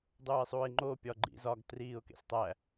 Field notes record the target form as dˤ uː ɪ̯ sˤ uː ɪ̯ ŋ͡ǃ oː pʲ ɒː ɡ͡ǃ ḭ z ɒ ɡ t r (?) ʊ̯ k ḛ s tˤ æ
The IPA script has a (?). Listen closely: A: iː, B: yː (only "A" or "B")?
A